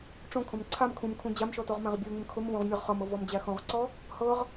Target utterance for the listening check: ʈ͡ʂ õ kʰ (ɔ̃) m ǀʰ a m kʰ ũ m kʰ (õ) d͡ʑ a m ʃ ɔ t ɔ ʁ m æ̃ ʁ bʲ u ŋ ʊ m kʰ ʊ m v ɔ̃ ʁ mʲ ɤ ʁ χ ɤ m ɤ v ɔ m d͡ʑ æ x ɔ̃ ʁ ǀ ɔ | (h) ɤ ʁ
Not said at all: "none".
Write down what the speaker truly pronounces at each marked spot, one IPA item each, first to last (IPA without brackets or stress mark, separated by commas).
õ, ũ, h